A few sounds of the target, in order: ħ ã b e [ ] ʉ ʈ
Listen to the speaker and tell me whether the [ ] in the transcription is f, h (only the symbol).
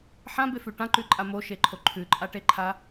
f